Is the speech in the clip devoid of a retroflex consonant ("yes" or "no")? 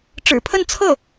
no